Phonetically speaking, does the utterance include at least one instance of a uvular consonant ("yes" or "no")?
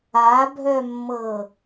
no